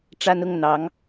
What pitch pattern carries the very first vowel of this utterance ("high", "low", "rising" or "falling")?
high